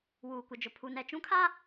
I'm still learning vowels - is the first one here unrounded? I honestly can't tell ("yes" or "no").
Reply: no